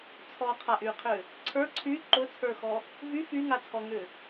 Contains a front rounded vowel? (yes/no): yes